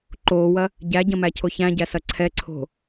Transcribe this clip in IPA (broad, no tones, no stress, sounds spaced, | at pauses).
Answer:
ǃ oː w ɐ | ɟ æ ɟ ɐ̃ m æ cʰ o ç æ̃ ɟ æ s ɐ ǀʰ ɛ ǀʰ o̤